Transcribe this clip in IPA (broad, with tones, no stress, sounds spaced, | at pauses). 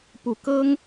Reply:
p u˨˦ k ɤ˦ ŋ